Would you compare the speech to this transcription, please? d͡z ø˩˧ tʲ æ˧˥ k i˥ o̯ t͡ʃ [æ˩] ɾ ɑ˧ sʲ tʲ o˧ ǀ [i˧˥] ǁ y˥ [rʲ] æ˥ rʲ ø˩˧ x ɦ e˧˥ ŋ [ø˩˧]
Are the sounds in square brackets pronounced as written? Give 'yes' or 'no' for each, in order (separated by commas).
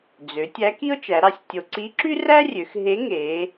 no, yes, no, no